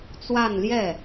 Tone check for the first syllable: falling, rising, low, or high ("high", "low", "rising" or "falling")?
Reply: falling